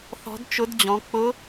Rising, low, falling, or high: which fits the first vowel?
rising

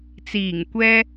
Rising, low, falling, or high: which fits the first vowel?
low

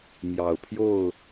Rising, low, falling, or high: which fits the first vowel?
low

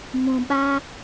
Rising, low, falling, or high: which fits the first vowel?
low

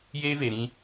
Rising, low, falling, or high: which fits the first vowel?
high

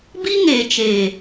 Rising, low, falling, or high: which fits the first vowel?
high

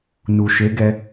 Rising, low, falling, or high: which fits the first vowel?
low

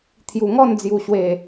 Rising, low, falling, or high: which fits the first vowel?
low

